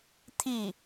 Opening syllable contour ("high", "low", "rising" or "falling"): falling